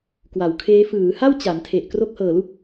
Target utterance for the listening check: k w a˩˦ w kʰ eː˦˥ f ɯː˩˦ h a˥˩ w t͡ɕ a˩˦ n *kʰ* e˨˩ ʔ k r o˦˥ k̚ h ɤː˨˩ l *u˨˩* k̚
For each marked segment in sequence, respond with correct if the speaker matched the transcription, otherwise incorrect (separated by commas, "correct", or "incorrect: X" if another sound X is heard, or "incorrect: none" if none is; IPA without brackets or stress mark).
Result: incorrect: tʰ, incorrect: u˥˩